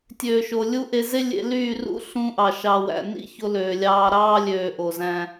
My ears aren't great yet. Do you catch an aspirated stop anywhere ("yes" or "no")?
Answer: no